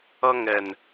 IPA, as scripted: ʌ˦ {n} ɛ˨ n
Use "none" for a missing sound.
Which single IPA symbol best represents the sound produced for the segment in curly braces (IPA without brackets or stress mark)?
ŋ